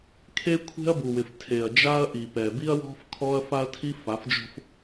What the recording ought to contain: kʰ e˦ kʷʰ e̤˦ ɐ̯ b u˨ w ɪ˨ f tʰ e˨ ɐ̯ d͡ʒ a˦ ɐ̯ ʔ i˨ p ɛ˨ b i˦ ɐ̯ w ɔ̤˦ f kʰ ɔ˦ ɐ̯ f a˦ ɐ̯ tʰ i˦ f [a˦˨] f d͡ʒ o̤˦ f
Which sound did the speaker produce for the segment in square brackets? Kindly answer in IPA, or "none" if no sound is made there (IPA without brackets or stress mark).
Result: a˨˦